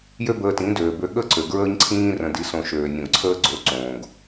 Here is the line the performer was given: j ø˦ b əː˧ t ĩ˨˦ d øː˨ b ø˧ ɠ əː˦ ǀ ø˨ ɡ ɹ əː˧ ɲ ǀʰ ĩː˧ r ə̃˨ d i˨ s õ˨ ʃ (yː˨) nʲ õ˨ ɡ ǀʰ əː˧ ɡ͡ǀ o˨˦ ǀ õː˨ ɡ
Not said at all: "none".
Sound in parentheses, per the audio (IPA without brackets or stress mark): øː˨